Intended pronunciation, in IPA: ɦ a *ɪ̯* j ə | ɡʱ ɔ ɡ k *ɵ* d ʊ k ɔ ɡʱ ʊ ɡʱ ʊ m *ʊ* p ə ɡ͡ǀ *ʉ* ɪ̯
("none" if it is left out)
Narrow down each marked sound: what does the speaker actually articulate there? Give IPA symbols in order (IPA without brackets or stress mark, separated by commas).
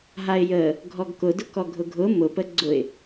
ɪ̯, ʊ, ʊ, ʊ